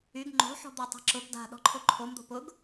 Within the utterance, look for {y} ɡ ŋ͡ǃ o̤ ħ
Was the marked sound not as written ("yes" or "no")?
no